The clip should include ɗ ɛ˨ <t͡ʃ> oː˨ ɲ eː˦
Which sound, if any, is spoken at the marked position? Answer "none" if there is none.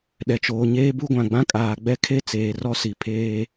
t͡ʃ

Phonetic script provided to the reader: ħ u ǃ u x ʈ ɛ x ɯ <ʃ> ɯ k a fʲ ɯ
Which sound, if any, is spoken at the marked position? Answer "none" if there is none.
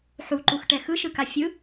ʃ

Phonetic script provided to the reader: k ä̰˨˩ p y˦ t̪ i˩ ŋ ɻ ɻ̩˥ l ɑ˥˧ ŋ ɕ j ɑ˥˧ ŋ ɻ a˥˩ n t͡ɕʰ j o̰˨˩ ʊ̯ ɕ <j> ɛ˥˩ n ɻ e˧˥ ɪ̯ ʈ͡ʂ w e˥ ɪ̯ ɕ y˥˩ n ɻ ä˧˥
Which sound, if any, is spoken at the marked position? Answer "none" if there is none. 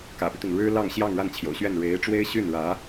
ɥ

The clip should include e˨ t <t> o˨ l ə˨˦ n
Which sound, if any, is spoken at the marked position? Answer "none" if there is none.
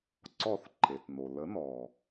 n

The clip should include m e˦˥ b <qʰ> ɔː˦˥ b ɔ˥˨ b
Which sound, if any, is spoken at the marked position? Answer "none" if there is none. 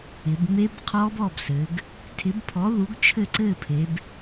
qʰ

